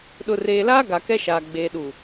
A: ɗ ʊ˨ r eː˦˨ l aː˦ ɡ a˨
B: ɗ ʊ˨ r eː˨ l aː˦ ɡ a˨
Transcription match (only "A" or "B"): B